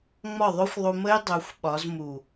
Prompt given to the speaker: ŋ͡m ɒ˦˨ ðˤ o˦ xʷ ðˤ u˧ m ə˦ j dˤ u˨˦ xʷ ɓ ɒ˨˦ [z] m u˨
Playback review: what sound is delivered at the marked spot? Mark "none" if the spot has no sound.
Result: z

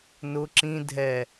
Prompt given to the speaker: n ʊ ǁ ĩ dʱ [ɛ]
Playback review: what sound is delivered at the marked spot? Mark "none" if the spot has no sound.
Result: ɛ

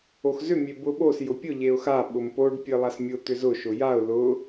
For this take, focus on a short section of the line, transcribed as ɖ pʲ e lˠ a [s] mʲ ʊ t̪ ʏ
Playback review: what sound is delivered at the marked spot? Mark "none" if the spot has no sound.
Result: s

